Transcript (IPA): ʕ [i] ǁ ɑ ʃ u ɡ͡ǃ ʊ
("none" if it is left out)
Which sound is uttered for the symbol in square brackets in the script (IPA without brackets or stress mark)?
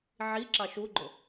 i